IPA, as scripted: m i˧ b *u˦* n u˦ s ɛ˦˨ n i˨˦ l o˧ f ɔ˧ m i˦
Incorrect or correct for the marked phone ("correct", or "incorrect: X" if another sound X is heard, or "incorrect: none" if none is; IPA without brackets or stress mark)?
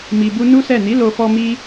correct